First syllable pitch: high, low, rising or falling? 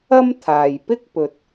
high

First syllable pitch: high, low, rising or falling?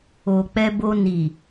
low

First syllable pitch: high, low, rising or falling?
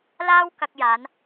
high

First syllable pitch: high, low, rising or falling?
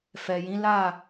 low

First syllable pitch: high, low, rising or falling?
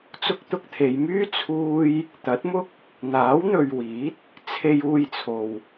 high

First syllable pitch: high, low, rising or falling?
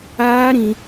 high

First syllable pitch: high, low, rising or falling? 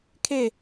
falling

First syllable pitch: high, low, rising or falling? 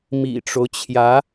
low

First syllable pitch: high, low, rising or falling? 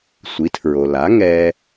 rising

